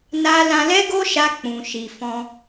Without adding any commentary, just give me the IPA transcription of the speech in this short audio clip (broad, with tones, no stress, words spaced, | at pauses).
na˧ lã˧lɛ˦ɡo˦ʃa˧ k͡pũ˨ʃi˨fɔ̃˧